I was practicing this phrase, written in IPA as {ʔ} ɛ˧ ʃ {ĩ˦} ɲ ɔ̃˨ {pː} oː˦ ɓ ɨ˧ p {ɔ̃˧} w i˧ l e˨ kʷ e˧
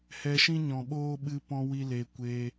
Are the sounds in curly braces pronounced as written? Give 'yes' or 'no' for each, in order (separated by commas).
no, yes, no, yes